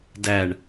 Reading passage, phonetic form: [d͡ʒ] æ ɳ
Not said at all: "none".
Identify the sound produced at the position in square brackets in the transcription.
d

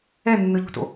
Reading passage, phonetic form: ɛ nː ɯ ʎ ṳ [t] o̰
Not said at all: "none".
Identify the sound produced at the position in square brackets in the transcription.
t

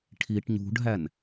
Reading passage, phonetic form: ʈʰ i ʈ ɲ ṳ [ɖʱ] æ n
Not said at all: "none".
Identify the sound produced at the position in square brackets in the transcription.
ɖʱ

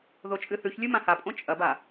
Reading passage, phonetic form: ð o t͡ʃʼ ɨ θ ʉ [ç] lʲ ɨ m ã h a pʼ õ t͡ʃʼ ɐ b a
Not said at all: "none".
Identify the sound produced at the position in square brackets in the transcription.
ç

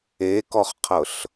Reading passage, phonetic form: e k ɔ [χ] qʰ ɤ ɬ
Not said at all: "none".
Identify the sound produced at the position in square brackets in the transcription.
χ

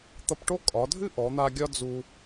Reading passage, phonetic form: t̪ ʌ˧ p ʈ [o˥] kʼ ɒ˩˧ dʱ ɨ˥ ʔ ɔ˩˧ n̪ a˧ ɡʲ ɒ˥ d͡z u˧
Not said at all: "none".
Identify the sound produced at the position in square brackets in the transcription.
o˥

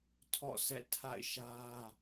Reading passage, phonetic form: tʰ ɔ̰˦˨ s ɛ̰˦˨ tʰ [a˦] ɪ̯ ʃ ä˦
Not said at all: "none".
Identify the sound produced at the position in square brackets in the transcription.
a̰˦˨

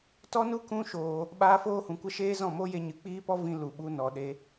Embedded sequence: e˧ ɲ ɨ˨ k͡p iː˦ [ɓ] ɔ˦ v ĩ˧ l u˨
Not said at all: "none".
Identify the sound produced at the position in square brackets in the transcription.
p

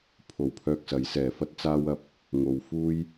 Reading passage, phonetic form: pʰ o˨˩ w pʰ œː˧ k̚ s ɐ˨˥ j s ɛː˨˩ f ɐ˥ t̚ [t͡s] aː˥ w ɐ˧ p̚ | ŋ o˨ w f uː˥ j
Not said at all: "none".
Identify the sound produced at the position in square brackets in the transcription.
t͡s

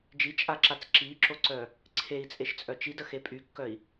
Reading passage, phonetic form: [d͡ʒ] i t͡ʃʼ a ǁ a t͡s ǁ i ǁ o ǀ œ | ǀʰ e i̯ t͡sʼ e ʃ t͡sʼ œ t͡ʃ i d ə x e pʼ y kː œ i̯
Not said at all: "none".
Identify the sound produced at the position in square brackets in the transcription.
d͡ʒ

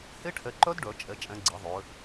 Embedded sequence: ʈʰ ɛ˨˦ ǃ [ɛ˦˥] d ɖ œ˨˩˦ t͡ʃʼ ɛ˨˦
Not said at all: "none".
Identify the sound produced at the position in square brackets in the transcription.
œ˦˥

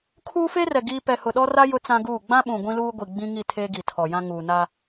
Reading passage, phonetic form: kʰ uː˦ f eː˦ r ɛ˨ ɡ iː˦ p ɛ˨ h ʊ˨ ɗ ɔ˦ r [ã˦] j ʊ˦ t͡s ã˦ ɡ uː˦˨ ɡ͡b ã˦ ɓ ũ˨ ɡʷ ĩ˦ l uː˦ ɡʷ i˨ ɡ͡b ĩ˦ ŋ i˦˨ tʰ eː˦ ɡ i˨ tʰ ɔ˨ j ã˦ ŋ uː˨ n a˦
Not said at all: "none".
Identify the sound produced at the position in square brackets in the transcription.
a˦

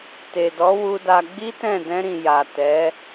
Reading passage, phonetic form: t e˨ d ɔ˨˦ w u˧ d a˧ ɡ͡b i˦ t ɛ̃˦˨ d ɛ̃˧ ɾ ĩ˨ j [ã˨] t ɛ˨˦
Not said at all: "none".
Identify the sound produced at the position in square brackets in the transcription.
a˨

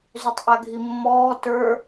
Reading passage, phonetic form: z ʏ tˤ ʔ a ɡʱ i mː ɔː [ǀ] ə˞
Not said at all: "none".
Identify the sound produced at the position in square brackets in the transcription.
t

